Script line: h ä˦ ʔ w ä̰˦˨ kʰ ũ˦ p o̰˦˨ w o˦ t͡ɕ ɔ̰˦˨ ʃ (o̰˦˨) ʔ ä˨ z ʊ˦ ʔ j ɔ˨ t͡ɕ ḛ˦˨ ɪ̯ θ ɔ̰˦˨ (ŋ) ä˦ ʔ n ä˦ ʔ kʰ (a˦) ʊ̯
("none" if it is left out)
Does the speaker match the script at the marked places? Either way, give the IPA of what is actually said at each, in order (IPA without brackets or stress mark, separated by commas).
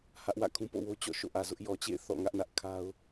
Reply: o̰˦˨, ŋ, a˦